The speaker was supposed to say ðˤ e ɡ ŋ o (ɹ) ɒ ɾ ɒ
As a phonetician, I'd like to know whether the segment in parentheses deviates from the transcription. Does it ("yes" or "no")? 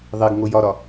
yes